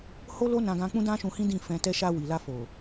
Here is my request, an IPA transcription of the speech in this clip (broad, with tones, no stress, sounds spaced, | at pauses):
h o˦ l o˦ n ã˧ ɡ ã˧ k͡p ũ˦ d ã˦ ʃ ũ˧ h ĩ˦ d ĩ˦˨ f ɛ̃˧ t ɛ˦ ʃ a˧ w i˨ l a˧ f o˨